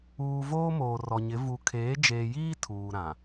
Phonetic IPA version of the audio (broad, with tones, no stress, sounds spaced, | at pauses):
uː˨ v oː˦ m oː˨ r ɔ˨ ɲ ɪ˨˦ v u˨ kʰ eː˨˦ d͡ʒ eː˨ j iː˦ tʰ uː˨ ɾ ã˨